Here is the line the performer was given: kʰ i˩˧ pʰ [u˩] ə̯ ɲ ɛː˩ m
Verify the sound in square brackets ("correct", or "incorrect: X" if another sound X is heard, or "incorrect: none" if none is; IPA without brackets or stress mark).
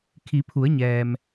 incorrect: u˩˧